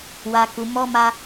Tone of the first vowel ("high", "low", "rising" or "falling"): low